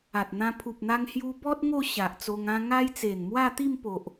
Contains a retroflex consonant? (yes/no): no